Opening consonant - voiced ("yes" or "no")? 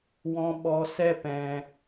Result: yes